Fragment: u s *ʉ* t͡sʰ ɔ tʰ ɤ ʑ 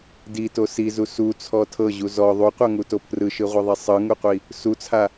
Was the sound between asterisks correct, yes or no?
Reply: no